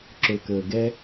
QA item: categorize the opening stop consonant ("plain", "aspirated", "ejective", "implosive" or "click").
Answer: click